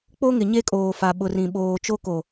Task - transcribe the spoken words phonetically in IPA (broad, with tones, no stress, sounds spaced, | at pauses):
k͡p o˦ ŋ ɪ˨ ɲ e˦ kʼ oː˨ f a˨ ɓ ʊ˨ r ĩ˨ ɓ oː˨ t͡ʃ o˦ k o˨